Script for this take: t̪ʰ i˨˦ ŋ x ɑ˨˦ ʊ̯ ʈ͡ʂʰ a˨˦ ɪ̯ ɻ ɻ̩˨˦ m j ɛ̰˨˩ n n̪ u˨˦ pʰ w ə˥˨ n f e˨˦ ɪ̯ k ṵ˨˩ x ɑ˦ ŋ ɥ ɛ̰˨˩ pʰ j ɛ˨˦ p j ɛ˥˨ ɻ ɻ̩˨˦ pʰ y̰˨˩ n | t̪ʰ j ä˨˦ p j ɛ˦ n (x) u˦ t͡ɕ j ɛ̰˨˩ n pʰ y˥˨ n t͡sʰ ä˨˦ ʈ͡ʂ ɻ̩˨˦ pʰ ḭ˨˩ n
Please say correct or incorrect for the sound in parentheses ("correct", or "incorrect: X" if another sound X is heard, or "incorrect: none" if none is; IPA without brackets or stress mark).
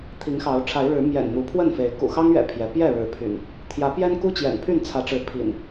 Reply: incorrect: k